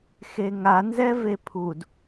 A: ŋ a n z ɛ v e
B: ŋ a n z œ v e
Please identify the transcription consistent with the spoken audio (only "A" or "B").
A